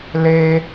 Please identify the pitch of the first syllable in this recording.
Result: low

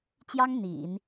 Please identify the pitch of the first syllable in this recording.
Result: high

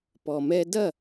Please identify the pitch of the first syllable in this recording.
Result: low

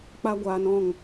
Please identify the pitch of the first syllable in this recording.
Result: high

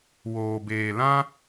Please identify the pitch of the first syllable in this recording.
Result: low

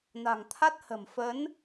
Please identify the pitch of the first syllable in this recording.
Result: low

